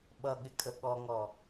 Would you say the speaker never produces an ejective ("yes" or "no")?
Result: no